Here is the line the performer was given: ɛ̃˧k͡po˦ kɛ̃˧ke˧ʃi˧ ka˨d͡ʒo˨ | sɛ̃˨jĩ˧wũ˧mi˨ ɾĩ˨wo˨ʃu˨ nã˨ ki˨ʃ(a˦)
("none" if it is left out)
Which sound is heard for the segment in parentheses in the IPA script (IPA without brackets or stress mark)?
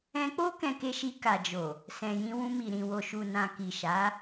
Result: a˨˦